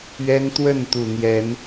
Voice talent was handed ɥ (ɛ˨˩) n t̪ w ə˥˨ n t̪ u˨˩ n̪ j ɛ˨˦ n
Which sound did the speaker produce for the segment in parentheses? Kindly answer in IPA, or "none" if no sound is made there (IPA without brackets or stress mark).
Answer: ɛ˦